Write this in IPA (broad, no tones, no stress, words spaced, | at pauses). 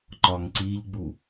ǃɒŋǀiʎɡ͡bu